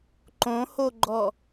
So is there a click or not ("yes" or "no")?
yes